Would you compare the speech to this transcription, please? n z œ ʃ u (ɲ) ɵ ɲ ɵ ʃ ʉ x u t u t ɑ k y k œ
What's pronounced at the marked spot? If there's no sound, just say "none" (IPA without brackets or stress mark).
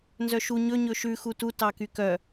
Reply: ɲ